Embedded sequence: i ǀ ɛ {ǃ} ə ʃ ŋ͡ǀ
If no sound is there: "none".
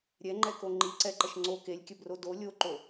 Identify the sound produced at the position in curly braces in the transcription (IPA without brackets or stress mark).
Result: ǃ